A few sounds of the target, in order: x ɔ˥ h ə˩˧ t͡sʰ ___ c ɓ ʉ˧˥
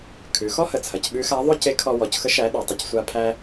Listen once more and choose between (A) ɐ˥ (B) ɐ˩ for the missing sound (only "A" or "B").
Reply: B